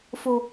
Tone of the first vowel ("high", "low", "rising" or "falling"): low